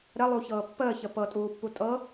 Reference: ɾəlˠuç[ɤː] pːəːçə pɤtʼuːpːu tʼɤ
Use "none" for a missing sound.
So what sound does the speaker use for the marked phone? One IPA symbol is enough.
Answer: ɤː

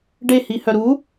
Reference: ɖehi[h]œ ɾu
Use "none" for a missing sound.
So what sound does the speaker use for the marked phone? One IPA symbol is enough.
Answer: h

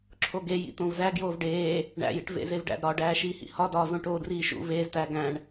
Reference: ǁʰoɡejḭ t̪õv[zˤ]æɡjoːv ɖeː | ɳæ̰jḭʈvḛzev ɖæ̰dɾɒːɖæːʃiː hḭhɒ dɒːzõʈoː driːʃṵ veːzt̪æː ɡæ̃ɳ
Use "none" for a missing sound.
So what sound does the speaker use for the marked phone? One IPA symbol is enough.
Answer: z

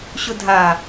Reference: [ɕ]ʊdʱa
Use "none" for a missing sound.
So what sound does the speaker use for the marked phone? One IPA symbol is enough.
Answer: ɕ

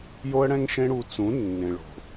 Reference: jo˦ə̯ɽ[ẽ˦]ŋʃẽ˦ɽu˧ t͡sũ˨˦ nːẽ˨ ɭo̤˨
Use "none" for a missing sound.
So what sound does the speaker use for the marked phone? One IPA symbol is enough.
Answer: ɛ̃˦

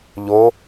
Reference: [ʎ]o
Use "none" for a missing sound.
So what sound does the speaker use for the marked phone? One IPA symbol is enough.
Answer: ʎ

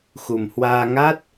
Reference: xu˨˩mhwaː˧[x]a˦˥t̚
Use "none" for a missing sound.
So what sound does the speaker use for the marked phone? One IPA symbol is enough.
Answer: ŋ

